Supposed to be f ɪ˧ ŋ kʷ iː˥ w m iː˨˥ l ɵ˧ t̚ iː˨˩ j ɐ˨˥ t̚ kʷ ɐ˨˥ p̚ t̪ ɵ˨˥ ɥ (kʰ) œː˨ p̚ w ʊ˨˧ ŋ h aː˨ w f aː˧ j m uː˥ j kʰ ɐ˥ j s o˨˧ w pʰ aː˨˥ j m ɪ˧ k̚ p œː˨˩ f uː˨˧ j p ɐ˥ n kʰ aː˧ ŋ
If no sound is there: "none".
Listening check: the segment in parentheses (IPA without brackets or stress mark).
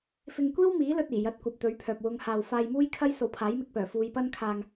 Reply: pʰ